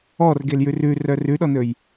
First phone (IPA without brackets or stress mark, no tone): ɔ